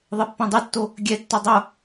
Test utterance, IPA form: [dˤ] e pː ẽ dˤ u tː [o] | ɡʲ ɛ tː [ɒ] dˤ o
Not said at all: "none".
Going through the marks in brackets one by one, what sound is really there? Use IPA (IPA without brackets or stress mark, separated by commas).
ðˤ, o, ɒ